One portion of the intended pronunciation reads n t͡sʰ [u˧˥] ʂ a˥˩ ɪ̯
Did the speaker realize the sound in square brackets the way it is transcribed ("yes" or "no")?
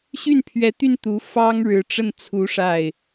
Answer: yes